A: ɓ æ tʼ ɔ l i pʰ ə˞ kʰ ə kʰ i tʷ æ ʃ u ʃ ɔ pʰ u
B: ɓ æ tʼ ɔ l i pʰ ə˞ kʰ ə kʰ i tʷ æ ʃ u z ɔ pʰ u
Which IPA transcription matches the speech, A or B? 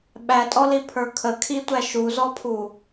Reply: B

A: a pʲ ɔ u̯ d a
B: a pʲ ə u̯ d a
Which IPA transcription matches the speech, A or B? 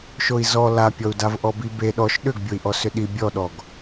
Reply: A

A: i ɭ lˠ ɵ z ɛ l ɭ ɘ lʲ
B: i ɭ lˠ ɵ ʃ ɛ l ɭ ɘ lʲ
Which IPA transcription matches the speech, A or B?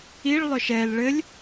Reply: B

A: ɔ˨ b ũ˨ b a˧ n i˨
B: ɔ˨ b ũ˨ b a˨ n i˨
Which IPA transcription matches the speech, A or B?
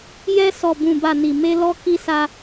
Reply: B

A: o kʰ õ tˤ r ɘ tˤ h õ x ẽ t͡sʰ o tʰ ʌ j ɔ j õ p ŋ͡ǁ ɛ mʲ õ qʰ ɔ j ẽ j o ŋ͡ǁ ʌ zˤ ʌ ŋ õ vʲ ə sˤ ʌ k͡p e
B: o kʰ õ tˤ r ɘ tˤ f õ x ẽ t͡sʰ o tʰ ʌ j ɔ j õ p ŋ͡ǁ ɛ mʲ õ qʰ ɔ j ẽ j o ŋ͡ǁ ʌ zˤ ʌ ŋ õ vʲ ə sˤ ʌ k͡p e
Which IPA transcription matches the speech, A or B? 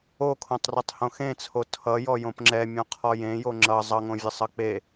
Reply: A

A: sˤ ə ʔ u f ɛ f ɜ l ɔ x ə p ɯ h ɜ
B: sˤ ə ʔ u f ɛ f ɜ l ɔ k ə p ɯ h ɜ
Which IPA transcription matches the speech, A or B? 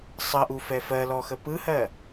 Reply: A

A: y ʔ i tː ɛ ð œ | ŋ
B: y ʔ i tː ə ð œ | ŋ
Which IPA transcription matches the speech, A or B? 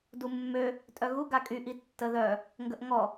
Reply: B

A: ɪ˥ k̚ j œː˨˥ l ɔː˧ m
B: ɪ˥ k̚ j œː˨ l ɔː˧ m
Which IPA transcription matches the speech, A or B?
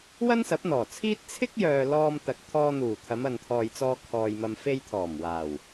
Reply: B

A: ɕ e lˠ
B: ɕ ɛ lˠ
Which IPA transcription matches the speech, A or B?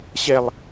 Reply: B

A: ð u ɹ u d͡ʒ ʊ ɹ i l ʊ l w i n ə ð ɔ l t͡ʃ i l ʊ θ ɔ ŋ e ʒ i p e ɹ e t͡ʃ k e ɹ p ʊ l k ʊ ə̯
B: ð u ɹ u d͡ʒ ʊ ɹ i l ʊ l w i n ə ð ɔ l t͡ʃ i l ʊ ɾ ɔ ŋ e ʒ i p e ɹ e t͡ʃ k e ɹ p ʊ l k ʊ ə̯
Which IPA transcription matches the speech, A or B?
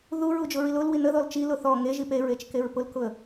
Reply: A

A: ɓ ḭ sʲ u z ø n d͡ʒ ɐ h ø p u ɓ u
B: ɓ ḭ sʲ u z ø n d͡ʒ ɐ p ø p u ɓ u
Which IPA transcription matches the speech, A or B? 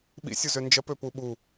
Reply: B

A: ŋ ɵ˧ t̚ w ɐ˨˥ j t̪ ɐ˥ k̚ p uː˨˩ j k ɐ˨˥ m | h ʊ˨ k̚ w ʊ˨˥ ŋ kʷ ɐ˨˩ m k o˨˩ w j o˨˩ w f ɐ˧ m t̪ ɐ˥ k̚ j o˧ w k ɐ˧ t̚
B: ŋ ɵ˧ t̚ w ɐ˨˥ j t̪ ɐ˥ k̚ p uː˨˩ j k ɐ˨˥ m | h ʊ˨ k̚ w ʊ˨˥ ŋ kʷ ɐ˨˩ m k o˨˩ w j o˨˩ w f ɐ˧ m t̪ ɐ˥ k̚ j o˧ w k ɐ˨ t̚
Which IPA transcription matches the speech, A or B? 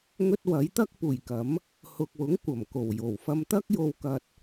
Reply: A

